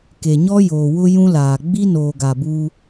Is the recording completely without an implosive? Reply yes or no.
yes